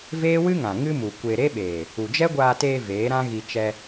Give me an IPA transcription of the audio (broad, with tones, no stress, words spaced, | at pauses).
veː˦wɨ˦ŋã˨ ŋɨ˦mu˨kʷe˧ ɾe˦ɓeː˨ | u˨d͡ʒɛ˦ɡʷaː˧teː˧ veː˨˦ɾã˦ɣi˧ t͡ʃɛ˧